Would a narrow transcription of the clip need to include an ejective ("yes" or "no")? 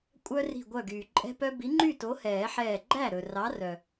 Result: yes